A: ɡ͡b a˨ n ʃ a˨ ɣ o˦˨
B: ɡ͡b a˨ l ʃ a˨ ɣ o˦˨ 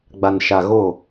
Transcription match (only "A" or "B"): A